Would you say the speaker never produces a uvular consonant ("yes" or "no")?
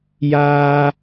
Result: yes